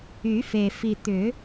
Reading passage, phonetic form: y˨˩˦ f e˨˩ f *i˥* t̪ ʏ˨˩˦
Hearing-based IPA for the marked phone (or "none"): i˨˩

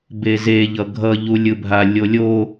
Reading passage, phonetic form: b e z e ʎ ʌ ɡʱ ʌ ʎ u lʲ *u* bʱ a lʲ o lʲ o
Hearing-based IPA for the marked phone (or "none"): ɯ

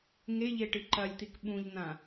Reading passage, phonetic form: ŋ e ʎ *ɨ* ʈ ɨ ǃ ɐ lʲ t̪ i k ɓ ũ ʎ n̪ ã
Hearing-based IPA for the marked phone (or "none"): e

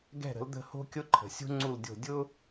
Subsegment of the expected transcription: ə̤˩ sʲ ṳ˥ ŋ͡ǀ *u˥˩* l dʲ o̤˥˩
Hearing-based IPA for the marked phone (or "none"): u˥˩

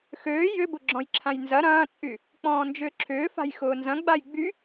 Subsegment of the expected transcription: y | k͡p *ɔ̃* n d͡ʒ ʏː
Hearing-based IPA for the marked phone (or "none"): ɔ̃ː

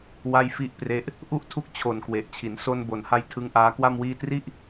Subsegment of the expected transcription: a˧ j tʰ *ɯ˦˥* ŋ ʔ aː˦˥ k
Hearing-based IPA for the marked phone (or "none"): ɯ˦˥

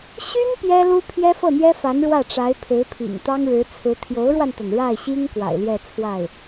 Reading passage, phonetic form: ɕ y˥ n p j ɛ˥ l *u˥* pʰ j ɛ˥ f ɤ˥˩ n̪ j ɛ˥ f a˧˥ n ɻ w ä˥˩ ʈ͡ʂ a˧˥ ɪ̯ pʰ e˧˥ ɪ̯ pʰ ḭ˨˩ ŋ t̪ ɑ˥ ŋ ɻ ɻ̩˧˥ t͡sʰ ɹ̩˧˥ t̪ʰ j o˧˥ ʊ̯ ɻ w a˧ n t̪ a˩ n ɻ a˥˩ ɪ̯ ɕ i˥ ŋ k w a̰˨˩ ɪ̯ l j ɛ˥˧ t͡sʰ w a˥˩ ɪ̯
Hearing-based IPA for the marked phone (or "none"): u˥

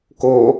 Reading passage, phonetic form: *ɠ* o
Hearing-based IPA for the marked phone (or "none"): k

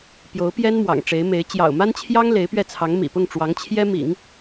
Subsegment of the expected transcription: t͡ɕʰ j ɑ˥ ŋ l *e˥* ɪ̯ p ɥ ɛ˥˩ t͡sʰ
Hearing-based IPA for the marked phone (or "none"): e˧˥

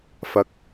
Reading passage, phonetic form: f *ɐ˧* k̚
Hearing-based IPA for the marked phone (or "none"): ɐ˧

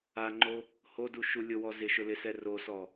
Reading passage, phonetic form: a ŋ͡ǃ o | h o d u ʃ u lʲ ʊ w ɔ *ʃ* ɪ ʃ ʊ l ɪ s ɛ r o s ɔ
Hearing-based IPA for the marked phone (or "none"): z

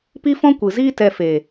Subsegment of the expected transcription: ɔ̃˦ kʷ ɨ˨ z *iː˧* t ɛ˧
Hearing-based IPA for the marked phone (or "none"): iː˦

